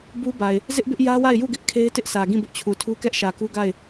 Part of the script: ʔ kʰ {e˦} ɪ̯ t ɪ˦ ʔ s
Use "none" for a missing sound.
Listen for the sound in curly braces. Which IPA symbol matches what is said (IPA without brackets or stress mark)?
e˦